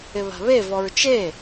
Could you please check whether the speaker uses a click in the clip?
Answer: no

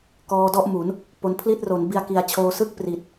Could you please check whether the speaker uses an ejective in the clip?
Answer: no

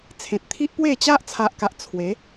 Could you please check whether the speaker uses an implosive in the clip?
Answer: no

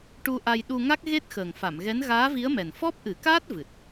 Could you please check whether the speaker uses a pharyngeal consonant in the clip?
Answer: no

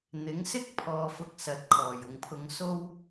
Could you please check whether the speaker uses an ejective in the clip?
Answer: no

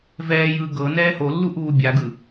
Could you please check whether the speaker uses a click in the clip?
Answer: no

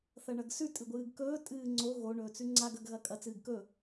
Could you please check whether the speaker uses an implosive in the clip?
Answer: no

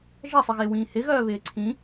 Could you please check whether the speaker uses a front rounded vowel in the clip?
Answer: yes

